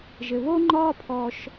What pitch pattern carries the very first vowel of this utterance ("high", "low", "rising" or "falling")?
low